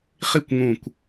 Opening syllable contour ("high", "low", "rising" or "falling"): falling